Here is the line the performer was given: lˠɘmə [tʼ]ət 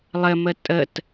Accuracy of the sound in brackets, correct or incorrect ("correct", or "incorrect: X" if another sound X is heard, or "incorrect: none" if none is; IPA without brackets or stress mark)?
correct